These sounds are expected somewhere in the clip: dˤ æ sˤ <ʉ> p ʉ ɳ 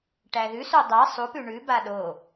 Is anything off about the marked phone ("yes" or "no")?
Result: yes